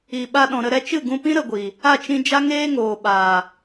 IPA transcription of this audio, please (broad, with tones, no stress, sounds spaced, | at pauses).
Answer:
i˨ ɓ a˧ ɗ ɔ̃˨ ɾ ə˧ ɾ ɛ˧ t͡ʃ ɨ˦˨ ɡ ũ˧ p ĩ˦ ɾ ə˧ ɡʷ i˨ | a˦˨ t͡ʃ ĩ˧ d͡ʒ a˦ ŋ eː˦ ŋ oː˨ ɓ aː˨